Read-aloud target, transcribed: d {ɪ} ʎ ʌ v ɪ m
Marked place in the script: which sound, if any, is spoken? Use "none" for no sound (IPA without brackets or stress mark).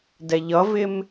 ɛ